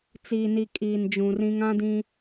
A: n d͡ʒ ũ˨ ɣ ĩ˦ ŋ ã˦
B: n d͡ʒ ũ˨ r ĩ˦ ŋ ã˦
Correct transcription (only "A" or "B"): B